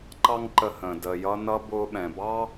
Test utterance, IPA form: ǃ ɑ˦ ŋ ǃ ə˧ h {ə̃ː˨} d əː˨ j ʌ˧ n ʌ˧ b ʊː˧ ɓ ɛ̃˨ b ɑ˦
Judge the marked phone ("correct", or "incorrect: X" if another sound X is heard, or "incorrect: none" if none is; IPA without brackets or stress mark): correct